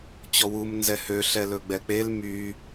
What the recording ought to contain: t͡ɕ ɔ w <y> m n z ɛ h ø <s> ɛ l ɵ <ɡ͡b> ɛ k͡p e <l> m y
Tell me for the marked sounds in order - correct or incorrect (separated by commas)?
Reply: incorrect, incorrect, correct, correct